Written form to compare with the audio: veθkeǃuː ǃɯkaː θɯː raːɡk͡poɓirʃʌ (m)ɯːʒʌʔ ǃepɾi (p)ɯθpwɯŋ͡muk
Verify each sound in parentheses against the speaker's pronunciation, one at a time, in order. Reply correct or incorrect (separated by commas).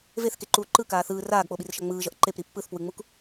incorrect, incorrect